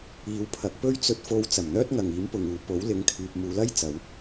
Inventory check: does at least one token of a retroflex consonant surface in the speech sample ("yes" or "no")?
no